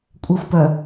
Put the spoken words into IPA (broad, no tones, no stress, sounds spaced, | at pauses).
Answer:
kʷʼ ɛ xʷ p œ